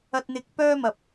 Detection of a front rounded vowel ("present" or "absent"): present